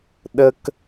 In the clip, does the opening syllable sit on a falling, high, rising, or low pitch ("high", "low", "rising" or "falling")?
high